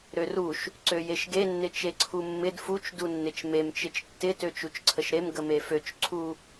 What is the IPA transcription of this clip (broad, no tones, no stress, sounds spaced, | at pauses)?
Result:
ɾ ø r u ʃ | ǀ ø j e ʃ ɡ e nː ɪ t͡ʃ e ǀʰ u mː ɪ d f u t͡ʃ d u nː ɪ t͡ʃ m e m t͡ʃ ɪ t͡ʃ tː ɪ t ø t͡ʃ u t͡ʃ ǀʰ ə ʃ ɾ e m ɡ ə m e f ø t͡ʃ ǀʰ u